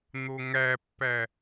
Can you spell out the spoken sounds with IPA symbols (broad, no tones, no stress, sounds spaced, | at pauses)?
n̪ o ŋ æ pː æ